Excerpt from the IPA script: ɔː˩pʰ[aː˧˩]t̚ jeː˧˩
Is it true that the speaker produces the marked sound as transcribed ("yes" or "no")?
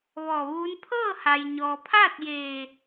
no